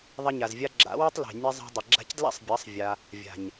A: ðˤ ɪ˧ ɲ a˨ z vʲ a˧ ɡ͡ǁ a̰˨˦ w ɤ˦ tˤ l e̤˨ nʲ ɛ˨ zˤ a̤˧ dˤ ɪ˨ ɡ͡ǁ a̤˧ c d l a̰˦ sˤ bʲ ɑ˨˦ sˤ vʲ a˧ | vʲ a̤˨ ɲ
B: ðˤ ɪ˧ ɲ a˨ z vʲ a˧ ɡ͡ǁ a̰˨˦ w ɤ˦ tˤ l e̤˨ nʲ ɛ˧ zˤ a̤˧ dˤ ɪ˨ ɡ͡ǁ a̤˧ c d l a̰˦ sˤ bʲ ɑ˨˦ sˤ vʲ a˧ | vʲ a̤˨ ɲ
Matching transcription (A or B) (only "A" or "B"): B